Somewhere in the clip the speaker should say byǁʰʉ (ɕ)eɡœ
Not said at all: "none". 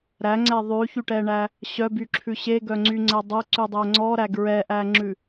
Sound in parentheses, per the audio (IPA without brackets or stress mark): ɕ